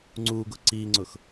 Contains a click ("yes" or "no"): yes